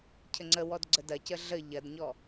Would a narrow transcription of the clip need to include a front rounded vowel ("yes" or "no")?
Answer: no